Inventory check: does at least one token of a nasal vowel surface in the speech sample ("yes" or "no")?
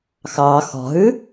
no